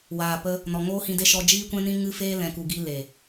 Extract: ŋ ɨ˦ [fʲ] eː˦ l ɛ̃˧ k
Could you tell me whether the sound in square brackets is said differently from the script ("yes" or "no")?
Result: yes